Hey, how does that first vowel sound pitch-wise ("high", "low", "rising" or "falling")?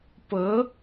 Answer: rising